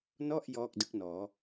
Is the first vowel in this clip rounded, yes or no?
yes